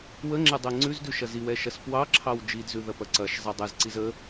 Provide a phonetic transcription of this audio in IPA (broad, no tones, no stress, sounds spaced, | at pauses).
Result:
w ə ŋ͡ǁ ɛ dˤ ɛ ŋ͡ǀ ʉ z d ʉ ʃ ɐ z i w ɛ ʃ ɐ s p w ɑ ǁʰ ɑ w d͡ʒ i d z ʉ ð ɐ p ɐ ǀ ɐ ʃ zˤ ɛ dˤ ɛ z ǀ i z ə